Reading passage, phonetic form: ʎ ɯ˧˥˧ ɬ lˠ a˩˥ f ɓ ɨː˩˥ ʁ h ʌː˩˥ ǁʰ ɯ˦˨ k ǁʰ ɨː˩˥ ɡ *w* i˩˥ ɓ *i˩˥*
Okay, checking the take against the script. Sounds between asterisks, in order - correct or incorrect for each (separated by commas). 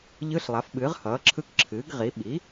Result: incorrect, correct